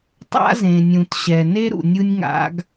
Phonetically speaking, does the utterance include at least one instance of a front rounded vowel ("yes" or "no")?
no